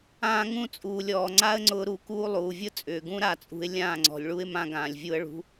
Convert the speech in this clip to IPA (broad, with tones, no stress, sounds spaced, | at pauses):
ãː˧ ŋ ũ˦˨ t͡sʼ uː˨ lʲ ɔː˨ ŋ͡ǀ a˦ ə̯ ŋ͡ǀ ʊː˧ ɾ u˧ k uː˦ lˠ uː˨ vʲ ʊ˦ t͡sʼ ʏː˨ ɡ ũ˦ ɾ a˦˨ t͡sʼ ṳ˧ ɪ̯ lʲ ãː˦˨ ŋ͡ǀ ɔ̤˨ lʲ ɭ u˦ ɪ̯ m ã˧ ɡ ãː˨ lʲ vʲ u˧ ə̯ ɭ ṳ˧